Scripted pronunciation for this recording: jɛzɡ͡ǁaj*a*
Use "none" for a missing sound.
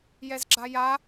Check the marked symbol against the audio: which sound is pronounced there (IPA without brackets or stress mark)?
a